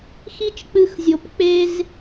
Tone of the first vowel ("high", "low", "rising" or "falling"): high